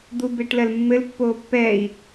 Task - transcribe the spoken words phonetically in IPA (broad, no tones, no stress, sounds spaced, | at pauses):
d̪ u b e ʈ l ɜ l mː ɘ l pː oː pː ɛ i̯